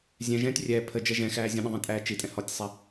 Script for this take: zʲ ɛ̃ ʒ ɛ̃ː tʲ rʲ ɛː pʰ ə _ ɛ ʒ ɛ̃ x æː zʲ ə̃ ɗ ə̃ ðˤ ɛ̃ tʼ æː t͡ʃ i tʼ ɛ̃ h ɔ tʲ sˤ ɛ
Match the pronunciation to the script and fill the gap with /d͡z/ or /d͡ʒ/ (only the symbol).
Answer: d͡ʒ